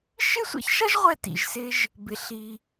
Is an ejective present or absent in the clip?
absent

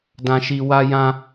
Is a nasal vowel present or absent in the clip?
present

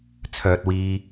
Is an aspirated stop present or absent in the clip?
present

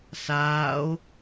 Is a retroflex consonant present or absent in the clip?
absent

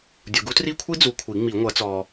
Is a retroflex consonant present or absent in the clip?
absent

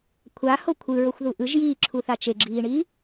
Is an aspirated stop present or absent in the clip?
present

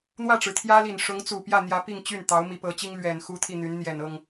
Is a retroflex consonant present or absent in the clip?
present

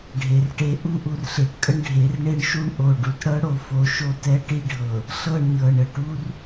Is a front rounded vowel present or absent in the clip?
absent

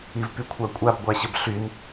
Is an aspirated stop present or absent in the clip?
present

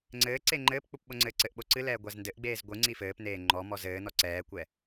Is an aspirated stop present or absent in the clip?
absent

